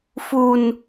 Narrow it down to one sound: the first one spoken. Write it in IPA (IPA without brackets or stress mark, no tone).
f